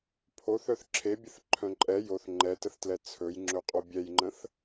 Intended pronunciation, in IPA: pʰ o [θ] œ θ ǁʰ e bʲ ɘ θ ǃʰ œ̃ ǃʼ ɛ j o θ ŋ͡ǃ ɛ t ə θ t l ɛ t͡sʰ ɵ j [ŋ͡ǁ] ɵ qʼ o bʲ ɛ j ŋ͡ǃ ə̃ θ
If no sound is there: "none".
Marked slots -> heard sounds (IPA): θ, ŋ͡ǁ

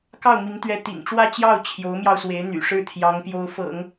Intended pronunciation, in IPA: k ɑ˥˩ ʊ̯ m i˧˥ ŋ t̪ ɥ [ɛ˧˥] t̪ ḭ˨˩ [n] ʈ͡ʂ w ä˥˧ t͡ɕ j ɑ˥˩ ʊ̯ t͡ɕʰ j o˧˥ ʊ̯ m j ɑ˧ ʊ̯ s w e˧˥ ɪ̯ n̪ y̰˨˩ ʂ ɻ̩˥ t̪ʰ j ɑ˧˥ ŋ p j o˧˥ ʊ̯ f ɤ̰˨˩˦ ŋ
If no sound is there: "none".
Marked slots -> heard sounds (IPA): ɛ˧˥, ŋ

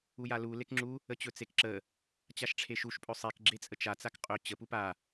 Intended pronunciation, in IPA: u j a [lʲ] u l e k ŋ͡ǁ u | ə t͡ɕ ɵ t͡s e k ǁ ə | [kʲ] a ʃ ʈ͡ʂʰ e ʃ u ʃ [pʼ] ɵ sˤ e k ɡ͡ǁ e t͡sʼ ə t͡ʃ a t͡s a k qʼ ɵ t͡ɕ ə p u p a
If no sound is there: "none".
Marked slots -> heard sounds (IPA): l, t͡ɕ, pʼ

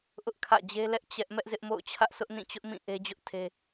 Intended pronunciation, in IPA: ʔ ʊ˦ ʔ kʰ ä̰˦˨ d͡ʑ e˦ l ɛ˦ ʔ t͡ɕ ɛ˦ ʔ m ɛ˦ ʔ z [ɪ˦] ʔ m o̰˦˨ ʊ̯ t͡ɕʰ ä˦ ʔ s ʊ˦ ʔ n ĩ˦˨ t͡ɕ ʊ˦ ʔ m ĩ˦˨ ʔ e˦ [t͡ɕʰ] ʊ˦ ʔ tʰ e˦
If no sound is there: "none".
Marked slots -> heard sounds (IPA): ɪ˦, d͡ʑ

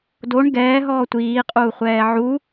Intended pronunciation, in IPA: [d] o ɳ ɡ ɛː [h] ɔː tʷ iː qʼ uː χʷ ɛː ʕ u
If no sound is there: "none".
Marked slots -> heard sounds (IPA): d, ɦ

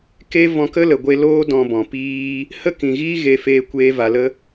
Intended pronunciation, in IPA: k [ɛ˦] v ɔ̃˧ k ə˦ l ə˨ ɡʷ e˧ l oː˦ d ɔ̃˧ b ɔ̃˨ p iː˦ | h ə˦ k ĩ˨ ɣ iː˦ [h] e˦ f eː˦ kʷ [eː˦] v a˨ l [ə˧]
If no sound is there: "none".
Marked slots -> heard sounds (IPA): e˦, ɣ, eː˦, ə˦

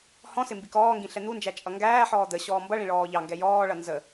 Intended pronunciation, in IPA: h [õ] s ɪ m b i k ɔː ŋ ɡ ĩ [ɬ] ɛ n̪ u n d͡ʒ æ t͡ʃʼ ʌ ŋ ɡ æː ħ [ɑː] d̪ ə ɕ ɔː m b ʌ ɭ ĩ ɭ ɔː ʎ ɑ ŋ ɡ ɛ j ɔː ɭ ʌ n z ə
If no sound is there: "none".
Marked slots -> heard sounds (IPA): ɔ̃, ɬ, ɔː

